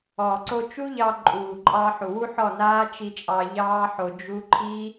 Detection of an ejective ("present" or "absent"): present